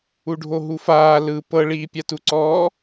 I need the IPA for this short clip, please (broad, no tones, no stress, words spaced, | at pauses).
uɖʱoɦufaː lɯ pɤ ɭiːpʲatuǀɔː